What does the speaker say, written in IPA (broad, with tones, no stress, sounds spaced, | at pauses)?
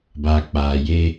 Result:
b aː˨ k͡p aː˨ j e˦